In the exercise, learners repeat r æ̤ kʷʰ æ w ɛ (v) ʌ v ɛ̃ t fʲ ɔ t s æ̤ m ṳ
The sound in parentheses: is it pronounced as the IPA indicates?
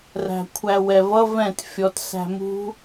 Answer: yes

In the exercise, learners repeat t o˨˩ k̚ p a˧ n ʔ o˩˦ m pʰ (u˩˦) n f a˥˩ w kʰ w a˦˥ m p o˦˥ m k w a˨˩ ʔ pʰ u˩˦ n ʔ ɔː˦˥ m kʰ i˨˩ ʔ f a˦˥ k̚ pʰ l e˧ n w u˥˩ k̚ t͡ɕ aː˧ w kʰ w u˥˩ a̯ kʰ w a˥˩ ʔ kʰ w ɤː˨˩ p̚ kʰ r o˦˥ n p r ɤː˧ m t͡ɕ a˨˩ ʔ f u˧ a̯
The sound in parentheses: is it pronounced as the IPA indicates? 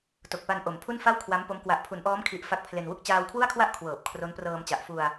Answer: no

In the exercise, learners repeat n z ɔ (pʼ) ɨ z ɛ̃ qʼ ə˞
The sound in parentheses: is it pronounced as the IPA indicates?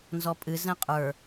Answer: yes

